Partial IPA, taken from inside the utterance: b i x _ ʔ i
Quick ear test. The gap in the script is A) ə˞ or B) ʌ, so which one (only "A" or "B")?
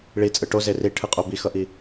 B